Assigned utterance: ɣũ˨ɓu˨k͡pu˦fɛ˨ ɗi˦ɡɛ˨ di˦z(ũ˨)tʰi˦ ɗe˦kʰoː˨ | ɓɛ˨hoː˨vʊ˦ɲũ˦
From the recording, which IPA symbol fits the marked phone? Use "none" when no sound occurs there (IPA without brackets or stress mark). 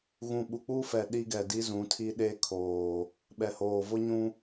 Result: ũ˨˦